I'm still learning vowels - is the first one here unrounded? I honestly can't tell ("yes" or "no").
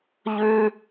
no